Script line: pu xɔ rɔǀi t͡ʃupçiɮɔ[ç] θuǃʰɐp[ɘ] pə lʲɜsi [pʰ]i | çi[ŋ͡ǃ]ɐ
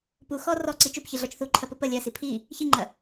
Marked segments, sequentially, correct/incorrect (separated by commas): incorrect, correct, correct, correct